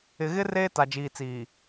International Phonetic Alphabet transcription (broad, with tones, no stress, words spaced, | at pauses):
ɪ˨ɣɪ˦ reː˦ta˨d͡ʒiː˨t͡siː˨